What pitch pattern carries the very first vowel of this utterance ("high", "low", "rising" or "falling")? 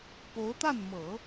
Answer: rising